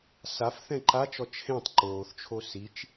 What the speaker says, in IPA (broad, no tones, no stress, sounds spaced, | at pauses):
s a f θ ɛ̃ ǃ a t͡ʃ ɔ t͡ʃʰ ẽ tˤ ǃ oː θ t͡ʃʰ o s i t͡ʃ